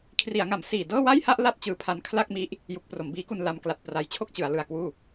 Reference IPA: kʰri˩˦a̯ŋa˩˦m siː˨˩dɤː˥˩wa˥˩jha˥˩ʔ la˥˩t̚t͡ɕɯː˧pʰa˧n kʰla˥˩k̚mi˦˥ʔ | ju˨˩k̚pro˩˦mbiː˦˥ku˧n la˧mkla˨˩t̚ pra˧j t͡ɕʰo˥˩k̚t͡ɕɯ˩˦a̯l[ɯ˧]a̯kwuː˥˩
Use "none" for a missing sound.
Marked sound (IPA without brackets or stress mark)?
ɯ˨˩